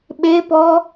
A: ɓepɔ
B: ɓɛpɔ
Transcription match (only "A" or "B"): A